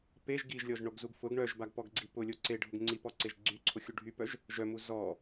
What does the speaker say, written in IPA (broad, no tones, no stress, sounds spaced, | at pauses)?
p e ʒ ɡ i ʒ lʲ ɔ ʒ ɳ o ɡ z u ɡ f ʊ ɡ ɳ œ ʒ b a ɡ p ɔ ɡ ɡ͡ǀ i p ʊ lʲ o ǀ e ɖʱ ʊ ɡ ŋ͡ǀ i p ɔ ǀ e ʒ ɡ͡ǀ y ǀʰ ʊ xʲ u ɖʱ y p œ ʒ | ʒ œ m u z ɔ